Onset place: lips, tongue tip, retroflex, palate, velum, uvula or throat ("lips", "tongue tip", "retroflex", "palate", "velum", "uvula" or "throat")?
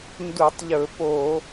tongue tip